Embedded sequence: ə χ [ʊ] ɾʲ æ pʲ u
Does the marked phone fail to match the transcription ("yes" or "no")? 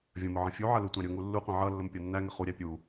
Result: yes